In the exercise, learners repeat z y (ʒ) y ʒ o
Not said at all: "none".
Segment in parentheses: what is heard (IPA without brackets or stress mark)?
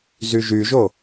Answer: ʒ